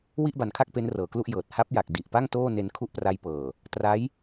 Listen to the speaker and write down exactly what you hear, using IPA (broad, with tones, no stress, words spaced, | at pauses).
wi˥˩ʔba˩˦nkʰa˥˩k̚ pe˦˥nrɤː˩˦klu˥˩ʔjɤː˨˩t̚ ha˦˥p̚ja˨˩k̚ di˨˩ʔpa˥˩ŋ toː˥˩ne˧n kʰu˥˩ʔpra˦˥jpɤː˨˩ | tra˦˥j